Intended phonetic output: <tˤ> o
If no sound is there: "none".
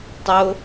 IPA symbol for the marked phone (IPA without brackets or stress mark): tˤ